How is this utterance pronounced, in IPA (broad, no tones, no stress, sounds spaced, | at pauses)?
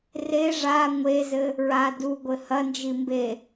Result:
r e ʐ a ŋʷ e z ɘ | ɹ a d u ɡʷ ɘ h ɐ n d͡ʒ i m b e